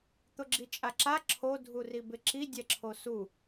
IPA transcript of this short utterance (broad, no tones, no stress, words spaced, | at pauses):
t̪ʊɡ͡ǁit͡ʃʼaǁa ǁʰo dʱuribɪǁi dʲɛǁʰosu